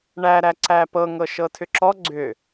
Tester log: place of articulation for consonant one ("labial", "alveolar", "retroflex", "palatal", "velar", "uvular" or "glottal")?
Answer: retroflex